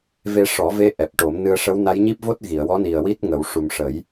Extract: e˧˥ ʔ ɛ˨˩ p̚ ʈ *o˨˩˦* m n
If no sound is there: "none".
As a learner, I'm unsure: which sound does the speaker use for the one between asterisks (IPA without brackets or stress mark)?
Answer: o˨˩˦